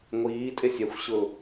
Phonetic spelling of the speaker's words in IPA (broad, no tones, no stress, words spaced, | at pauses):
ŋʷiːtʼesʲ ɛxʷɕʊ